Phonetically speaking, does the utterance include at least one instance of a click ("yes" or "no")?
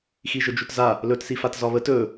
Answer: no